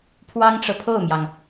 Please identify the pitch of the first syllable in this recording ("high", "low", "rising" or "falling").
high